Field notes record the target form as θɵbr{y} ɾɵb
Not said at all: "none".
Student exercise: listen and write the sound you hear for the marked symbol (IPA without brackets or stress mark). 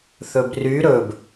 y